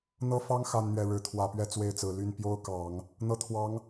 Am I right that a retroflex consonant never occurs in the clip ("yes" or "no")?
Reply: no